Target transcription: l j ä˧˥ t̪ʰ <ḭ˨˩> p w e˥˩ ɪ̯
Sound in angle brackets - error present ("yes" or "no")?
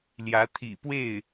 no